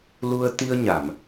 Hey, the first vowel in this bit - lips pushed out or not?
yes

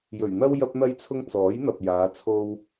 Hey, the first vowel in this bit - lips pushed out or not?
yes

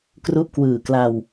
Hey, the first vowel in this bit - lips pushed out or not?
yes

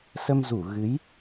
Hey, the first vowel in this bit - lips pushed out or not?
no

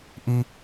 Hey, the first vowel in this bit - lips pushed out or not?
no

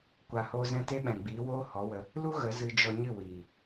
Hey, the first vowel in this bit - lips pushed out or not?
no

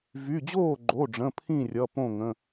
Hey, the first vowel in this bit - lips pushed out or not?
yes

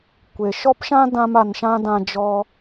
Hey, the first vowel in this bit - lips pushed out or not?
no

